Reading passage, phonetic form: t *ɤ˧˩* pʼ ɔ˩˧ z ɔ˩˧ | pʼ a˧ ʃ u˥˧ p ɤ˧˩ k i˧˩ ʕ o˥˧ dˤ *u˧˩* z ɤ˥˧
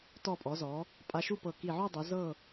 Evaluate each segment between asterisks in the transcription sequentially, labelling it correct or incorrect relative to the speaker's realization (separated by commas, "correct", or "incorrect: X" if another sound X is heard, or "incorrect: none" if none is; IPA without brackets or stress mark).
incorrect: ɔ˧˩, incorrect: u˩˧